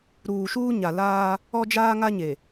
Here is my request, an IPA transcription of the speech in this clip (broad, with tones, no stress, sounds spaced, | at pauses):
ɾ uː˨ ʃ uː˦ ɲ a˨ l aː˦ | ɔ˦ d͡ʒ aː˦ ŋ a˦ ɲ e˨